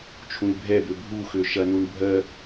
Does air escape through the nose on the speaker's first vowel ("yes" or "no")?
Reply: yes